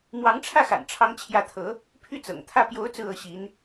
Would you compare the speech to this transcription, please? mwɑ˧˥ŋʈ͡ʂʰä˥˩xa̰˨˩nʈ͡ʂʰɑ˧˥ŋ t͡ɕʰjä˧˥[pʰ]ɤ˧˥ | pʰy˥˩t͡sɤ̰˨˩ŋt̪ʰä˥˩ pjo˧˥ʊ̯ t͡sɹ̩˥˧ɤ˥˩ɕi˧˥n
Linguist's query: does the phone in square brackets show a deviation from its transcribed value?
yes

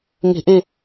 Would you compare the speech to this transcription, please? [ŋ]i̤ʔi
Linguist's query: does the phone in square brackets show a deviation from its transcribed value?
no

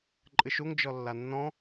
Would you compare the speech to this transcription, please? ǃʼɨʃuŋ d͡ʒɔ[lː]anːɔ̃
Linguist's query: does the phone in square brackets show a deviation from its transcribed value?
no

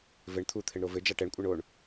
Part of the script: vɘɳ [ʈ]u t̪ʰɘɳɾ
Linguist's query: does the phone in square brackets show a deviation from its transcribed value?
yes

